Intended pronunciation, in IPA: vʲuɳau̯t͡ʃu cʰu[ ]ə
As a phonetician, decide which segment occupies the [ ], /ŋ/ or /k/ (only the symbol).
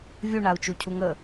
ŋ